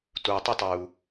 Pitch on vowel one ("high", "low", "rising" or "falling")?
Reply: low